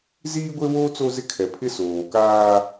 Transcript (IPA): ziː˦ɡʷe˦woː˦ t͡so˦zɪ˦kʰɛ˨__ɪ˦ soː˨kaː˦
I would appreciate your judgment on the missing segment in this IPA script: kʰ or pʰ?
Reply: pʰ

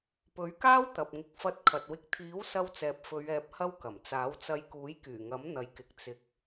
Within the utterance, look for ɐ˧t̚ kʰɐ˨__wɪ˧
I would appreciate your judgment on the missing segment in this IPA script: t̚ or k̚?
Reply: t̚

